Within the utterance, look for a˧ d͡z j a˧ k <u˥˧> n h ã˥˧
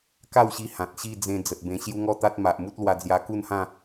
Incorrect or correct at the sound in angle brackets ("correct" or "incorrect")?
correct